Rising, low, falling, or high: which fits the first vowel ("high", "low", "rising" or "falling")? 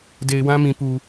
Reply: low